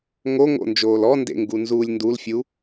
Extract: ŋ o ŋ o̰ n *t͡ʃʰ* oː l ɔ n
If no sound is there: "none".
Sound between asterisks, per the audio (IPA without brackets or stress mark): d͡ʒ